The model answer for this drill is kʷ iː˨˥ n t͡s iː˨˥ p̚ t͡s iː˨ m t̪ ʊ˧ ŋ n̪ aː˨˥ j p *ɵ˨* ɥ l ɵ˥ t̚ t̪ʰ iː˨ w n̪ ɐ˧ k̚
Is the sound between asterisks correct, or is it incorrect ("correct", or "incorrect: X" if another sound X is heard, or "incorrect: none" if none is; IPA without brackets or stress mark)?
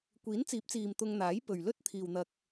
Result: correct